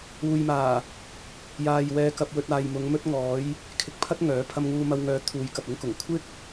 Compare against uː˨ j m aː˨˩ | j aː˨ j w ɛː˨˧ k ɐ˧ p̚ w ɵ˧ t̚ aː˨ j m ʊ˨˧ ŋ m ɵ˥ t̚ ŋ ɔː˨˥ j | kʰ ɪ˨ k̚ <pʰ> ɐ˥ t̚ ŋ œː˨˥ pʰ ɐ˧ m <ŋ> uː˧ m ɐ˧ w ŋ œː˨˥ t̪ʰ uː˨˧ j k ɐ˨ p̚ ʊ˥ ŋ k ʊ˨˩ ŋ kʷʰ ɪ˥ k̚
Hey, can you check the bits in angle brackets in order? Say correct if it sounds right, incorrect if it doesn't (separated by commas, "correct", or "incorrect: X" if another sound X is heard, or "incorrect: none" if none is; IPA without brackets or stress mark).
correct, correct